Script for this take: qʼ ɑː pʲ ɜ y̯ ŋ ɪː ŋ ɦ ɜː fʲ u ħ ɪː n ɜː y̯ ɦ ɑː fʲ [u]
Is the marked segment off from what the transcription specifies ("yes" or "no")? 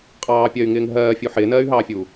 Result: yes